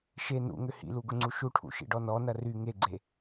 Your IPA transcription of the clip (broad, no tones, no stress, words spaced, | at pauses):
ʃe nṵŋʏ hḭluɡʊŋ͡ǀu ʃuʈʰṵʃḭɖɔ nɔnɐ ry ŋeɡ͡ǀe